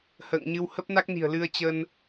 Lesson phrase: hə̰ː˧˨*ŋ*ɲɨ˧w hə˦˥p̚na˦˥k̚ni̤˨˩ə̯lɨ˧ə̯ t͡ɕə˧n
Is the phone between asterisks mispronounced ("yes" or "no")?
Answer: no